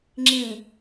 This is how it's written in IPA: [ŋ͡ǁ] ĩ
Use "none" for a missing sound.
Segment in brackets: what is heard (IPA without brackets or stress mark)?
ŋ͡ǁ